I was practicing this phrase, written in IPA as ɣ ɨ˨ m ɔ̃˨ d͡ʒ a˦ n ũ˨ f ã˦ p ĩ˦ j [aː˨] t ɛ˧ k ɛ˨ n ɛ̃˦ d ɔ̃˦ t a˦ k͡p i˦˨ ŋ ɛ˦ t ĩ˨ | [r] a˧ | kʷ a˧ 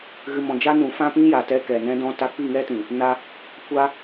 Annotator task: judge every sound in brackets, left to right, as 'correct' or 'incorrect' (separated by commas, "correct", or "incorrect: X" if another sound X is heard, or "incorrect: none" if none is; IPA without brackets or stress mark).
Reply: incorrect: a˨, incorrect: n